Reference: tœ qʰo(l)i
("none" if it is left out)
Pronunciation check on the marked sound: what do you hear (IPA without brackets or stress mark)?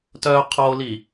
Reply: l